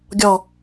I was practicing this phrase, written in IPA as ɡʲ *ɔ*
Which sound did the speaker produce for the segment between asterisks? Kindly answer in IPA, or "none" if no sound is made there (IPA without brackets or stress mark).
ɔ